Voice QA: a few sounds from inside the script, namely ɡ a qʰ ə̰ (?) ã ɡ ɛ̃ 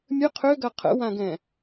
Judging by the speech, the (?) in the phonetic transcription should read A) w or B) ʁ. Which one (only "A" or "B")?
A